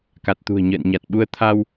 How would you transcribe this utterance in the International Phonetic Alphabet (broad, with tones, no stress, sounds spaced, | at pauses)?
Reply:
k a˨˩ t̚ t̪ ṳ˨˩ ə̯ ɲ ə̰ː˧˨ n ɲ a˨˩ t̚ ɓ u˧ ə̯ t̪ʰ a˧ w